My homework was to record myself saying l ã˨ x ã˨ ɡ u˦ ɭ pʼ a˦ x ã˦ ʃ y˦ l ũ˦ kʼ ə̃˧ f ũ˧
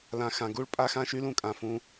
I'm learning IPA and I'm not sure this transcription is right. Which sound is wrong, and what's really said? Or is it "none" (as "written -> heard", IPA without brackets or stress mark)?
ə̃˧ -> ã˧